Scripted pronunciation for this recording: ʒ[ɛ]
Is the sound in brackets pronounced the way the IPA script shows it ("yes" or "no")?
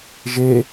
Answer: no